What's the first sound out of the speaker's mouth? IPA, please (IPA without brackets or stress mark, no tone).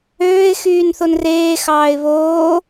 øː